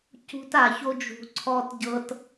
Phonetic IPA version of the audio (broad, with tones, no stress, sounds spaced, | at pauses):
c ṳ˦ t a˨ ç o˦ d͡ʒ ṳ˨ ǀʰ ɔ˦ t ɟ ɤ˦ t